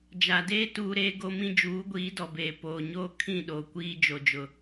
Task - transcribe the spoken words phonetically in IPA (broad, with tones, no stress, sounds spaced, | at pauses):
d͡ʒ a˨ d eː˦ t uː˦ ɾ eː˦ ɡ o˦ m ĩ˦ d͡ʒ uː˨˦ ɡʷ iː˨˦ d ɔ˨ b eː˨ p oː˨ ɲ oː˦ kʰ ĩ˦˨ ɗ oː˨ kʷ iː˦ d͡ʒ o˨ d͡ʒ ʊ˨